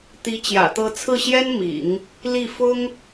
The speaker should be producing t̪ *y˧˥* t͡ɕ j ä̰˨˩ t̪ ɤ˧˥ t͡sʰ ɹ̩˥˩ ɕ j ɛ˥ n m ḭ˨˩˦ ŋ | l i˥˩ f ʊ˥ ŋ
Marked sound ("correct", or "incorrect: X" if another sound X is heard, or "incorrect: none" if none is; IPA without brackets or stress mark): incorrect: i˧˥